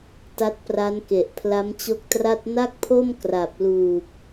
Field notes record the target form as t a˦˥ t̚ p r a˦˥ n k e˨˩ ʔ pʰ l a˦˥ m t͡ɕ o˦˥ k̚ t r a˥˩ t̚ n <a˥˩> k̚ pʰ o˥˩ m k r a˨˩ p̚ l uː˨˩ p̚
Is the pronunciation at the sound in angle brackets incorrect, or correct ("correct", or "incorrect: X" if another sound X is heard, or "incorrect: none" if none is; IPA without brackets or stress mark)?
correct